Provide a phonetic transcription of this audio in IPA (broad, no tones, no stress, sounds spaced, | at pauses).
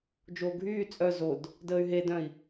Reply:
d͡ʒ oː ɡʱ yː t͡sʼ œ z o d | d əː y̯ ɦ e d œ̃ i̯